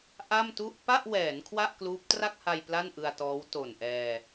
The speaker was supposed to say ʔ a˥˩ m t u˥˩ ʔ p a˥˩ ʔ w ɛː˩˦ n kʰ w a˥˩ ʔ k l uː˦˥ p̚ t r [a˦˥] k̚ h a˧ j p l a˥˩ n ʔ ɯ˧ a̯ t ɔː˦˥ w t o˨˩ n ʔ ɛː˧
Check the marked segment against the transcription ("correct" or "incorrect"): incorrect